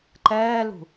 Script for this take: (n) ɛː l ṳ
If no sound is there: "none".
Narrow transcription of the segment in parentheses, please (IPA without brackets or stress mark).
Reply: ǃ